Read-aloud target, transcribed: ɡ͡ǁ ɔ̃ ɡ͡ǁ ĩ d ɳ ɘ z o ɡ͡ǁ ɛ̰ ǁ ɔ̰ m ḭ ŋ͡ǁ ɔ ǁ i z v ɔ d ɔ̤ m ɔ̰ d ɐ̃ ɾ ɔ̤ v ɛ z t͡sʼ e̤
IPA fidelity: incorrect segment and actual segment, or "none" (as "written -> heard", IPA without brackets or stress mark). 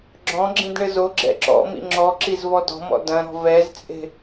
none